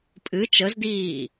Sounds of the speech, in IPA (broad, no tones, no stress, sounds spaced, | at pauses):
pʼ ɨ t͡ʃ ə z d iː